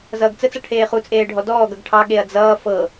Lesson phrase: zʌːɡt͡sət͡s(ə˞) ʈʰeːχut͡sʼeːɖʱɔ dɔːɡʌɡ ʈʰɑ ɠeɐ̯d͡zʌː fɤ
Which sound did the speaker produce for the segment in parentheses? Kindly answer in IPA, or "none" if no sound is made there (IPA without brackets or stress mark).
ʌ